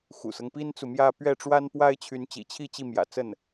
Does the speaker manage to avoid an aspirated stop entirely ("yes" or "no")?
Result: no